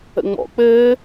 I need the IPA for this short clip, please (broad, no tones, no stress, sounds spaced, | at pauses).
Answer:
ə̰ ŋ͡m ɔ̰ k͡p ɘː